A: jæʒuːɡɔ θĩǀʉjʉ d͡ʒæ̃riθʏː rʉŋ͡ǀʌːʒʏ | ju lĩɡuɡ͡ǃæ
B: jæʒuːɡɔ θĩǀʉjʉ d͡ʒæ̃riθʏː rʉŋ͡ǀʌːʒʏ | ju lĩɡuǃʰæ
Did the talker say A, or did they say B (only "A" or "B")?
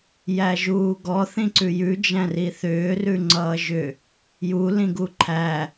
B